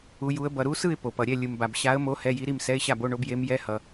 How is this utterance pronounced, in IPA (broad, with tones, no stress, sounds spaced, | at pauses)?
u˧˥ j u˧˥ ə̯ b ʌ˨ ɾ u˧˥ s ɯ˥˨ ɪ̯ p o˨ p ʌ˨ ɾʲ ɛ˥˨ lʲ ɯ˨ m b a˨ b ɕ a˧˥ ə̯ m o˧˥ h ɛ˧˥˧ j i˧˥ ɾ i˥˨ m s ɛ˧˥˧ ɪ̯ ɕ a˥˨ b o˧˥˧ ɳ o˧˥ b j e˧˥ m j ɛ˧˥˧ h ʌ˨